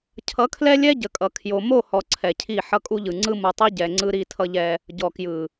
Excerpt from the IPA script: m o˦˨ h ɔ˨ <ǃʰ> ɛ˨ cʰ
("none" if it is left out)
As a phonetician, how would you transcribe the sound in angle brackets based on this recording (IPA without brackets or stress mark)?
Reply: ǀʰ